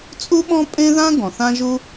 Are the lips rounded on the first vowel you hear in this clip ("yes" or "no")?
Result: yes